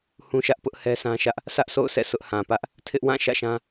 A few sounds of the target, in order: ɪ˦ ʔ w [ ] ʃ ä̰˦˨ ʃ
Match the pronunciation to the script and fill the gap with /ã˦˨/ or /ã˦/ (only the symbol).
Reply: ã˦˨